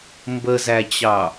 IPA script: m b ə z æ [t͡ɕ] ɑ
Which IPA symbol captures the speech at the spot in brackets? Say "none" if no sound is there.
t͡ɕ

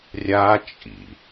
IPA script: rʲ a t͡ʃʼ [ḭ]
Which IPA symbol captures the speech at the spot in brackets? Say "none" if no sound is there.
ḭ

